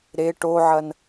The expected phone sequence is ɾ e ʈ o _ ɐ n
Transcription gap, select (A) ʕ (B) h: A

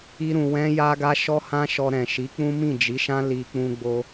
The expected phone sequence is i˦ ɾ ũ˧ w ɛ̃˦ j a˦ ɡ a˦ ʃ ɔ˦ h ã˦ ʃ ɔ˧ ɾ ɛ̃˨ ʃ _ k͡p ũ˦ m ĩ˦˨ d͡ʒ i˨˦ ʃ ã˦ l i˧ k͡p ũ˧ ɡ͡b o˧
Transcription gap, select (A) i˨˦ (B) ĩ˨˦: A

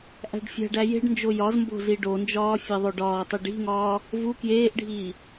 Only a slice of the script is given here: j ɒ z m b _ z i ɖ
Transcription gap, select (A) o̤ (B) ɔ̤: A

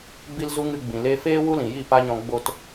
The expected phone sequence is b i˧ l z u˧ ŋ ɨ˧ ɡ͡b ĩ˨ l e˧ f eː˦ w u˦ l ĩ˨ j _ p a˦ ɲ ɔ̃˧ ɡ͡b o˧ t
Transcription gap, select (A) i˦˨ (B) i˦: A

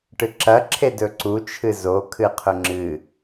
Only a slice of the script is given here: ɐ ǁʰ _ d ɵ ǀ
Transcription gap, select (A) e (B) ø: A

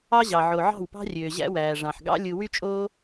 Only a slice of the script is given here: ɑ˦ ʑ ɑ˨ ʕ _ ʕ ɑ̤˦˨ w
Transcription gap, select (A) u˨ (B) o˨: B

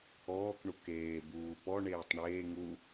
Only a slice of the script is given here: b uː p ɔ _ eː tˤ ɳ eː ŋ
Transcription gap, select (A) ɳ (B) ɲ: A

